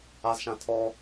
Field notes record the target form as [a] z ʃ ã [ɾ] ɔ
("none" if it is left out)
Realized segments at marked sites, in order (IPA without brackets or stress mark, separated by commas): a, tʰ